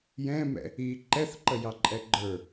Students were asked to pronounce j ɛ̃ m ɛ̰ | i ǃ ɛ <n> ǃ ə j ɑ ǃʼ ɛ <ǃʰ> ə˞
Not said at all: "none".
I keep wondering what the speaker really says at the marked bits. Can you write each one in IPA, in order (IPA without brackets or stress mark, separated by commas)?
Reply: θ, ɡ͡ǃ